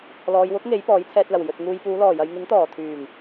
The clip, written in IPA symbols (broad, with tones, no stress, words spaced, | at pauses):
lɔː˨jwʊ˨˥k̚ ŋe˨˥j pɔː˨˥jt͡sʰɛː˧t̚lɐ˨˩w jɵ˨t̚ŋuː˧j puː˨˧lɔː˨˩jɐ˨j ŋɪ˨˥ŋt̪ɔː˨˩t̪ʰyː˨˩ŋ